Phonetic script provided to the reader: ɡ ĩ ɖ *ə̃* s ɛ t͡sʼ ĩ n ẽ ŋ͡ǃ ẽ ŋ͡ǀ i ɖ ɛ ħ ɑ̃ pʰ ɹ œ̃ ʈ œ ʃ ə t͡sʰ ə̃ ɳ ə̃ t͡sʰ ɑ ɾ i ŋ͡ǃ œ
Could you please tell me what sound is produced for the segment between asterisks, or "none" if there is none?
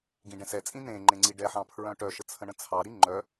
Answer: ɛ̃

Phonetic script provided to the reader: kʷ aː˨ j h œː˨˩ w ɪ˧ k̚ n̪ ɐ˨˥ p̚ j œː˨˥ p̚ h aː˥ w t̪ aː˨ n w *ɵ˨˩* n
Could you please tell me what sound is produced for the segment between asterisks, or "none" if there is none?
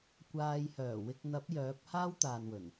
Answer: ɵ˨˩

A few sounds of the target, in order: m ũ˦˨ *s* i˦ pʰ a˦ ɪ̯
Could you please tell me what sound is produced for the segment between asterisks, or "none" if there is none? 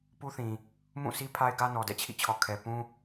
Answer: s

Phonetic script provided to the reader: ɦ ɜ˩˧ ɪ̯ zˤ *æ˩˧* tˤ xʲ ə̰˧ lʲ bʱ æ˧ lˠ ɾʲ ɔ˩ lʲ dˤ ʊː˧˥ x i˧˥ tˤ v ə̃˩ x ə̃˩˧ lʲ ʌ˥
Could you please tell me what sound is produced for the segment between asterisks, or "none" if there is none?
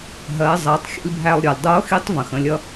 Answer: æ˩˧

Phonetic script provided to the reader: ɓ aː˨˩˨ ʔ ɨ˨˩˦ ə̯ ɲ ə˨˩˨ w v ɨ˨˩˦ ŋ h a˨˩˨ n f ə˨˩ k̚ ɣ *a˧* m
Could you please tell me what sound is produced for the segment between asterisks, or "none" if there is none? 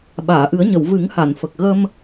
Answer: ə˧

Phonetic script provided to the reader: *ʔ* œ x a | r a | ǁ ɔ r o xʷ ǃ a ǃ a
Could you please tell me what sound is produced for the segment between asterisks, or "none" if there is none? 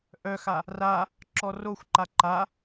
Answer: ʔ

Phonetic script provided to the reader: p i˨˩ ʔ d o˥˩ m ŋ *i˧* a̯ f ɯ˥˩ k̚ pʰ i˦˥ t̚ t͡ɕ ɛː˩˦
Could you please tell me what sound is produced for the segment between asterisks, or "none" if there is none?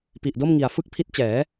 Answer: i˨˩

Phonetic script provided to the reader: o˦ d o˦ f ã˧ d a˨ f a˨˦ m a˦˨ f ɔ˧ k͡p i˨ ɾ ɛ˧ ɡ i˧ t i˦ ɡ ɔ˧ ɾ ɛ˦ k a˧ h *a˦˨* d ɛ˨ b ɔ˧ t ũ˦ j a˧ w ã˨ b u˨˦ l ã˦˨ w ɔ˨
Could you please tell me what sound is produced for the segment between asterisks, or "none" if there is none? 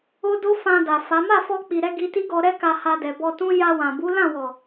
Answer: a˧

